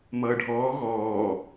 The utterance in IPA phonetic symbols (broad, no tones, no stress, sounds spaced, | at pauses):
m ʌː ɖʱ ɔː ɣ ɔː